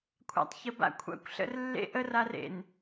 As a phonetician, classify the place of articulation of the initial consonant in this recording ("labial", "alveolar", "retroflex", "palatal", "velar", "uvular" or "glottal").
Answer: velar